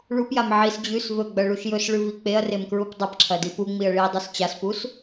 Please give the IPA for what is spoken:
ɭ u p j a m ʕ i s d͡ʑ ʉ s v ɵ ɡ͡b ɐ ɭ u ʃ j ɵ s ɭ ʉ v i k͡p e ɐ̯ r e m k ɹ u p dˤ ɐ p ǁʰ ɐ d i p u ŋ͡m i ɐ̯ ɭ i dˤ ɵ s t͡ɕ a s p u s

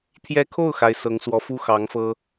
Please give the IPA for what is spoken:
t̪ʰ j ɛ˧˥ kʰ o˥˩ ʊ̯ x a˧˥ ɪ̯ s ɤ˧˥ ŋ s w ɔ˧˥ f u˥ x ɑ˧˥ ŋ f ɤ˥

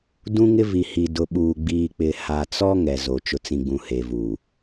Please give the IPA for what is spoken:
d ũ˦ ŋ ɪ˦ v i˨ h i˨ d ʊ˨ ɓ uː˨ ɡ͡b iː˨ k͡p ɪ˨ h a˨ t͡s ɔ˦ ŋ ɛ˨ z o˨ t͡ʃ ʊ˨ t͡s ĩ˨ ɡ͡b ũ˨ h e˨ v uː˨

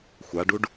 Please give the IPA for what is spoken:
xʷ a ɖ u ɖ

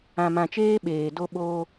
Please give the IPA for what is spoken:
ã˨ m ã˨ t͡ʃ eː˦ ɓ eː˨ d o˦ ɓ oː˦

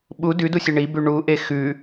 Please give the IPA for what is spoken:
ɓ u d ʉ d u sʲ e ɳ i b ʉ ɳ u ʔ e x ʉ

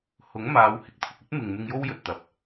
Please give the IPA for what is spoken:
h ʊ˨˥ ŋ m aː˨˧ w h ɪ˨˥ k̚ t̪ʰ ʊ˨ k̚ ɵ˥ t̚ m ɪ˨ ŋ m ɪ˧ ŋ j o˥ w j ɵ˨ t̚ t̪ ɐ˨ p̚

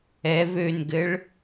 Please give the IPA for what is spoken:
ɛ v ø n ɡ ɘ ɭ

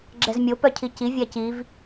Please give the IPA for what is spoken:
ɡ͡ǁ ɛ z mʲ o p œ cʰ i c i vʲ æ c i v

